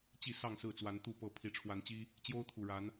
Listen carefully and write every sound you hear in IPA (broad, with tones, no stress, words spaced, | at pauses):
t͡ɕi˥˨sɑ˥˨ŋ sɹ̩˥˨t͡swa˨˦n t̪u˥˨pɤ˥˨ pʰi˨˦ʈ͡ʂʰwa˨˦nt͡ɕi˦ | t͡ɕjo˦ʊ̯t̪ʰu˨˩ɻa˨˦n